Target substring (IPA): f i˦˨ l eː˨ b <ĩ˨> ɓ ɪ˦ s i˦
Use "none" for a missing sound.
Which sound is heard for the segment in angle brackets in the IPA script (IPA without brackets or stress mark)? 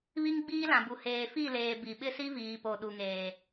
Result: i˨